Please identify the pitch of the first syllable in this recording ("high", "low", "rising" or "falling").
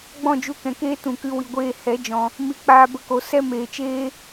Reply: falling